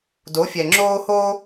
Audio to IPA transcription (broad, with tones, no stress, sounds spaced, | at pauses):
d o˨˦ fʲ ɛ˨ ŋ͡ǁ oː˦ h oː˦